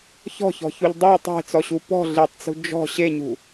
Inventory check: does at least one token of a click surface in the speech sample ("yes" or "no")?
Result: no